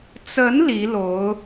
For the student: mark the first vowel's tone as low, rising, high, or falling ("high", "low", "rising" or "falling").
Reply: rising